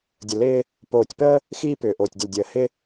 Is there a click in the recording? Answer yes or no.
no